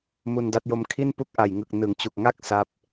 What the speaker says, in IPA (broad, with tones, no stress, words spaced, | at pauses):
mu˧nda˦˥t̚jo˦˥m kʰi˥˩n pu˥˩k̚ ʔa˨˩jŋɯ˨˩k̚ nɯ˩˦ŋt͡ɕu˨˩k̚ŋa˥˩k̚ sa˦˥p̚